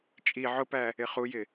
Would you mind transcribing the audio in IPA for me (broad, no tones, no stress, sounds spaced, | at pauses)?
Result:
t͡ʃʼ i ʕ ʊ p æ | ɪ χ u j ɪ